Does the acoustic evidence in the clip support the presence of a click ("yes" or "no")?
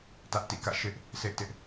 no